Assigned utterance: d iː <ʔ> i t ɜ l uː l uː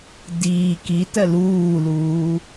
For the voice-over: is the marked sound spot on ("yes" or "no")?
no